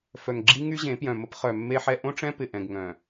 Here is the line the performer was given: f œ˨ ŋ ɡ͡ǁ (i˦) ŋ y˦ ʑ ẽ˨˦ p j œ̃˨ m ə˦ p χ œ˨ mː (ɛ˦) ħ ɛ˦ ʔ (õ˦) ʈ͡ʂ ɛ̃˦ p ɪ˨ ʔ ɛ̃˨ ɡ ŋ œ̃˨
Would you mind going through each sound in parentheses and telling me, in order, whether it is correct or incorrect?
correct, incorrect, correct

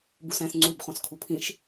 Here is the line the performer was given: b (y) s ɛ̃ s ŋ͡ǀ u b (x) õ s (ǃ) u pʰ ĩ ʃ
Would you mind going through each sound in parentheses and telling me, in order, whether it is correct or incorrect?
incorrect, incorrect, incorrect

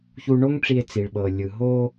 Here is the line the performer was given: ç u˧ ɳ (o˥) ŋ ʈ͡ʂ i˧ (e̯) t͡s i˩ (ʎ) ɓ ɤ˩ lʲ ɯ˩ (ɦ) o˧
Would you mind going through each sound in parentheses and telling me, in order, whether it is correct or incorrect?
correct, correct, incorrect, correct

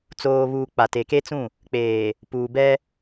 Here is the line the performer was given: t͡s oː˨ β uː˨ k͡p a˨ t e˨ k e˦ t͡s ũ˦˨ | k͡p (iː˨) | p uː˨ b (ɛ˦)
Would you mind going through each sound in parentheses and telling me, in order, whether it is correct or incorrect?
incorrect, correct

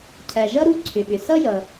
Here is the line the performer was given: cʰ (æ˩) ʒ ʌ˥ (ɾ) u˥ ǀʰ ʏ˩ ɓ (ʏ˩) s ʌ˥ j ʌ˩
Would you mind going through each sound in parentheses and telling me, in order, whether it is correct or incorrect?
correct, correct, correct

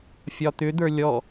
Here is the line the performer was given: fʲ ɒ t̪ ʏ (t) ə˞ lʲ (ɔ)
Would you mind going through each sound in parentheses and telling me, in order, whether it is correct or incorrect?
incorrect, correct

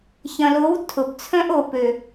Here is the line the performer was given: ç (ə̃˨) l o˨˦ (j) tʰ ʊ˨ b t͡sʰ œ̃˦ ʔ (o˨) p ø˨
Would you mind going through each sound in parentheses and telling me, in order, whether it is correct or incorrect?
incorrect, incorrect, correct

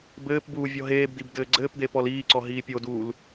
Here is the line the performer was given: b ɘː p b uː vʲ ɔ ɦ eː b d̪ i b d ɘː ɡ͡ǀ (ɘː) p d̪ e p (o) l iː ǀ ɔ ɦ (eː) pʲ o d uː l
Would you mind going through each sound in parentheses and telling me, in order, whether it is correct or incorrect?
correct, incorrect, incorrect

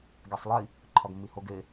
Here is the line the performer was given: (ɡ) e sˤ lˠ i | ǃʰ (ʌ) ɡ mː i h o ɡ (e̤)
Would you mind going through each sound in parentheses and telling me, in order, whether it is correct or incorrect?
correct, incorrect, incorrect

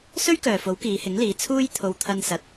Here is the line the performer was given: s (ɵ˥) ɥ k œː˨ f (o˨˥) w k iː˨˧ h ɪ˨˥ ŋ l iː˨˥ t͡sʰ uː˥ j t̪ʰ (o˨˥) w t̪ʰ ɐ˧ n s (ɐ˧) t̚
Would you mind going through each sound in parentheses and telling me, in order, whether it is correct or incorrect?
correct, correct, incorrect, incorrect

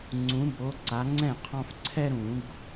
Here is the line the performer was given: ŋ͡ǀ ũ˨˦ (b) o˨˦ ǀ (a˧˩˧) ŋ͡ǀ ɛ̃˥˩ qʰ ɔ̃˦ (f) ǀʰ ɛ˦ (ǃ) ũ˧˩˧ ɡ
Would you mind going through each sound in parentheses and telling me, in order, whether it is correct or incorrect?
correct, incorrect, correct, incorrect

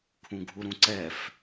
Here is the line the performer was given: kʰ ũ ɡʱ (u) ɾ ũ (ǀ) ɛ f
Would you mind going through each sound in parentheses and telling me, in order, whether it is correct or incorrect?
correct, correct

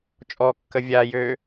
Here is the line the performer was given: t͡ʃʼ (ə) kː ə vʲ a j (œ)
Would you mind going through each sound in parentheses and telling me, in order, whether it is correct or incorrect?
incorrect, incorrect

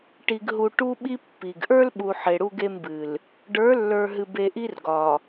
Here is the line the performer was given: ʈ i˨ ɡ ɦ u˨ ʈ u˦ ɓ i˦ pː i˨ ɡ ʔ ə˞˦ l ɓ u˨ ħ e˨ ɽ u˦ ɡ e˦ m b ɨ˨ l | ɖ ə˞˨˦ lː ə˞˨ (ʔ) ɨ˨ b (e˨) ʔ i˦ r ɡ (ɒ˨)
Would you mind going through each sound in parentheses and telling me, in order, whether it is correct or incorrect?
incorrect, correct, correct

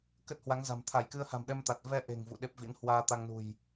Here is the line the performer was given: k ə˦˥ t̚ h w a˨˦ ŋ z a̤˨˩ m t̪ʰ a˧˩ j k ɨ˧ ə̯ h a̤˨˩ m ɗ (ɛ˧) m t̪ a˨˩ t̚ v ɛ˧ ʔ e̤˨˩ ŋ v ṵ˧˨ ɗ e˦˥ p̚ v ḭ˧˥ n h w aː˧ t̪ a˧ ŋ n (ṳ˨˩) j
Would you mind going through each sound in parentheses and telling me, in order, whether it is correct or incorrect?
correct, correct

